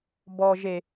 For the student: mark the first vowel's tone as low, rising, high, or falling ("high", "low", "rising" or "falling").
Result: low